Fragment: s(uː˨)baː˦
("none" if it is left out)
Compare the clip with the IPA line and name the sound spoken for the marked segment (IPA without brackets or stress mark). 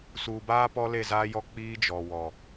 uː˨